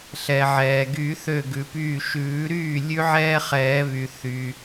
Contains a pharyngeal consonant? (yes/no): yes